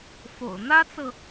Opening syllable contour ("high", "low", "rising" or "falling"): low